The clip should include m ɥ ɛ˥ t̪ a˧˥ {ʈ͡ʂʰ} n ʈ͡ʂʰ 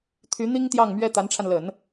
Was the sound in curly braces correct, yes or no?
no